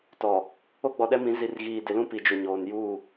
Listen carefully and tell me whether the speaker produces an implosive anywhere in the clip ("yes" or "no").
yes